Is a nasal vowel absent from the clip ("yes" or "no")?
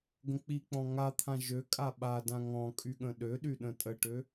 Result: no